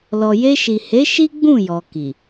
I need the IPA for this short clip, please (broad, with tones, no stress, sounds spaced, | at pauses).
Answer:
l ɔ˨ j e˧ ʃ i˨ h e˨˦ ʃ i˦ ɡ͡b ũ˦˨ j ɔ˨ k i˨